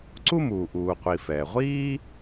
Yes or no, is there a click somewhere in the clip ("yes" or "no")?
yes